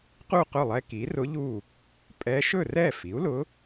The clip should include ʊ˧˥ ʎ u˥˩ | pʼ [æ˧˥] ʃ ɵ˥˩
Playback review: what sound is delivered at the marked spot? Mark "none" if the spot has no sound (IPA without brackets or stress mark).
ɛ˧˥